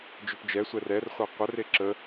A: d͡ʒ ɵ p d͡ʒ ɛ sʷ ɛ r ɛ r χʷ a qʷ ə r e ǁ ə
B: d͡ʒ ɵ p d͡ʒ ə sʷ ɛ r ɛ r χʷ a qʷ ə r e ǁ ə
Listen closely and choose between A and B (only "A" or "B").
A